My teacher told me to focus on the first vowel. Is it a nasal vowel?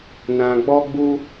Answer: yes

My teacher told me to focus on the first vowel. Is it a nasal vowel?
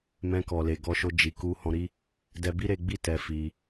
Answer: yes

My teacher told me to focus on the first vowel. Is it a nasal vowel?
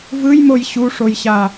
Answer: no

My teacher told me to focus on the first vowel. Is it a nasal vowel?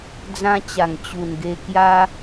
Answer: yes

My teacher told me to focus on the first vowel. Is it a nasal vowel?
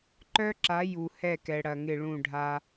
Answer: no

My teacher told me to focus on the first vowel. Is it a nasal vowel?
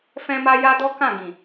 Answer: yes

